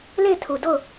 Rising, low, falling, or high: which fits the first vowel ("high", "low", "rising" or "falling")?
falling